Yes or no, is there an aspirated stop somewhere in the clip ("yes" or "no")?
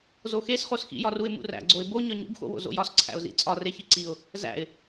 yes